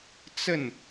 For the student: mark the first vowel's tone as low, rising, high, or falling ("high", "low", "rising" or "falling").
falling